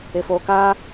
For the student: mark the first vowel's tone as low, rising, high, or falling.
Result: low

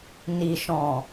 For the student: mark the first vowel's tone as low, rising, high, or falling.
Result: low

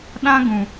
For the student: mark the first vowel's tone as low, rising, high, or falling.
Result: high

